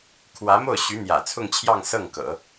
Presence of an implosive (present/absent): absent